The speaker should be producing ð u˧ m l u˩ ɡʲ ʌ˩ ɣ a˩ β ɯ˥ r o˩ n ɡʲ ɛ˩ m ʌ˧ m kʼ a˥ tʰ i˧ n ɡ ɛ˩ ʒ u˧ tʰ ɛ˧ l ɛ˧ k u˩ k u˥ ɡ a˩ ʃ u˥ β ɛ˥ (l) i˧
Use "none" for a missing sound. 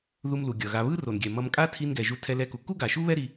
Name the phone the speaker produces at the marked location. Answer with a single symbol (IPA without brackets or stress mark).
ɾ